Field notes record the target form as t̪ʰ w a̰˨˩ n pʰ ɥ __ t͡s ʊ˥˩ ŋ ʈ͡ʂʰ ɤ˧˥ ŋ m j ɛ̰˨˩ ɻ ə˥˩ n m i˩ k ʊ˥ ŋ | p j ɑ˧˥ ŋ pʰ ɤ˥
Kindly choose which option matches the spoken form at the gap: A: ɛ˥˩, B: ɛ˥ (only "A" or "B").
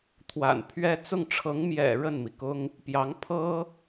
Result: B